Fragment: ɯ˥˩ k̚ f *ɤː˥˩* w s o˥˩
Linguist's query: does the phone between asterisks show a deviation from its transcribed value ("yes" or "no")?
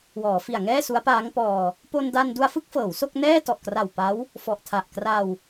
yes